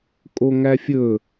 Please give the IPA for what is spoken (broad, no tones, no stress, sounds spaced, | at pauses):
kʼ o ŋ æ fʲ ɵ